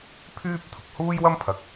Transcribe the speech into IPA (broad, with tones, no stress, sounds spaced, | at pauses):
pʰ yː˥ p̚ t̪ʰ ʊ˨˥ k̚ h uː˥ j w ɐ˥ m pʰ ɐ˨ k̚